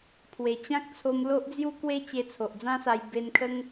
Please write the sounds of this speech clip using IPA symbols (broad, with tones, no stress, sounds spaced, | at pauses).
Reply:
pʰ w e˨˩ t͡ɕ ã˦ k̚ t͡sʰ o˧ m l o˦ ʔ d͡z j u˦ k w e˦ t͡ɕ e˧ t͡sʰ o˨ ʔ d͡z ã˦ s a˧ j b e˧ n kʰ ə˦ ŋ